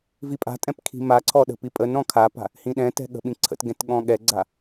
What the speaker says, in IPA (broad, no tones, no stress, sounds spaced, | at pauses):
v i pʼ a̤ tʼ ɛ̃ p kʰ i̤ m a ǀʰ ɔ ɗ ə̤ p i pʼ ə n ɾ ɔ̃ kʰ a p a̤ | h ĩ ɗ ɛ̃ t ɛ̤ ɠ ə̤ ɓ ĩ ǀʰ ə̰ t ɡ ɛ̃ t ɠ ɔ̃ ɠ ɛ ɡ͡ǀ a